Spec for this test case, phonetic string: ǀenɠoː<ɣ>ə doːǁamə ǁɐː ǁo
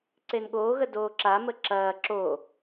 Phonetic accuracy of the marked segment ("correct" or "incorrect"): correct